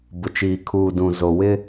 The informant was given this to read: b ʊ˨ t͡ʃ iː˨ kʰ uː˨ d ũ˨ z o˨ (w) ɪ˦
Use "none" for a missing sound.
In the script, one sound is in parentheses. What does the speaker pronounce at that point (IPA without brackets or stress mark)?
w